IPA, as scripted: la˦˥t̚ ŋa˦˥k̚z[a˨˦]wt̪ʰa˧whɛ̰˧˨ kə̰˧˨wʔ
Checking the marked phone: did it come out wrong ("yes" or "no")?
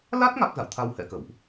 yes